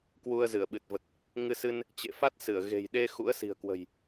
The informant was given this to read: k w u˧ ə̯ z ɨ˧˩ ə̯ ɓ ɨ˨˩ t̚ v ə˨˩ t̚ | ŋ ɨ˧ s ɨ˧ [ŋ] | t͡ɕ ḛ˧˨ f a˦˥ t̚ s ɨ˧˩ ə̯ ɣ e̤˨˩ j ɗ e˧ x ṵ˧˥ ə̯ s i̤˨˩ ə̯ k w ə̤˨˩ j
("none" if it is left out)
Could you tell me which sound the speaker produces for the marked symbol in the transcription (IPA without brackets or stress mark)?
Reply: n